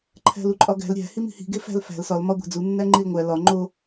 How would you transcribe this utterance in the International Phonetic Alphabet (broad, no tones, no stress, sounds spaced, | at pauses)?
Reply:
ǃʰ æ̤ l u ǃʼ ɒ ɡ æ̤ l ɾʲ æ̤ h i m i̤ h i̤ ɡ e f æ̤ l f æ̤ l s ɒ l m ɒ ɡʷ æ̤ d͡z u nː æ ŋ͡ǃ i l ŋʷ æ l ɒ ŋ͡ǃ o